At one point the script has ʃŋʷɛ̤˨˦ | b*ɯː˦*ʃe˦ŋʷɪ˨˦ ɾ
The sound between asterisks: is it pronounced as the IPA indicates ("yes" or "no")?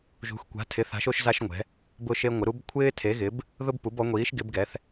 no